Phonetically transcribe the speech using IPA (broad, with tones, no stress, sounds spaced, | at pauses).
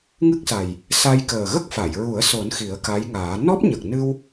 ŋ ɨ˦˥ k̚ s a˨˩ j | s a˧ j k əː˨˩ ɣ ə˦˥ k̚ f a˨˩˨ j ɹ u˨˩˦ ə̯ s o˨˩˦ n x i˨˩˦ ə̯ k a˧˥ j ŋ aː˨˩˦ n ɔ˦˥ p̚ ɲ ə˨˩ k̚ n ɨ˧ w